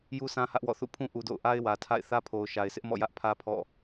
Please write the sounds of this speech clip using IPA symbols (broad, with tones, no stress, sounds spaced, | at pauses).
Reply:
j u˦ sʰ ã˦ h ä˦ ʔ w ɔ̰˦˨ θ ṵ˦˨ pʰ ũ˦ ʔ u˦ d o̰˦˨ ʊ̯ ʔ a˦ ɪ̯ w ä˨ tʰ a̰˦˨ ɪ̯ θ ä˦ pʰ o˨ ʊ̯ ʃ a˨ ɪ̯ sʰ ɪ˦ ʔ m ɔ̰˦˨ j ä˦ ʔ pʰ ä˦ pʰ ɔ̰˦˨